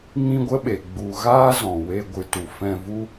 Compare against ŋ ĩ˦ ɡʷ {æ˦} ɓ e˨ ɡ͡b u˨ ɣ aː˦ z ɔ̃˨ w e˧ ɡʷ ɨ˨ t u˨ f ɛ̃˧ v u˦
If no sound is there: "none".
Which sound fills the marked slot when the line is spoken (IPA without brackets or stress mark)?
ə˦